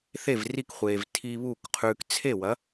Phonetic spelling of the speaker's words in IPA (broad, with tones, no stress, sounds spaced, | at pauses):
θ e˥˩ v r i˥˩ k χʷ eː˩ v tʰ iː˧ β u˥˩ k qʰ ʉː˧ k t͡sʰ e˥˩ w ɐ˩˥